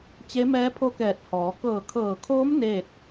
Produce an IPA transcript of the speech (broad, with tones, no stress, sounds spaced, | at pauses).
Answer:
t͡ɕ e˧˥ m ɛː˧˥ pʰ o˧˥ k ɛː˧˩ t̚ h ɔː˩˧ k ɤː˧˩ kʰ ɤː˧˩ kʰ oː˧˥ m n eː˥˨ t̚